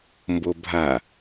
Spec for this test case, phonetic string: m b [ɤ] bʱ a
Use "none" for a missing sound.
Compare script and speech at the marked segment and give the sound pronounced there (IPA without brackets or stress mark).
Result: o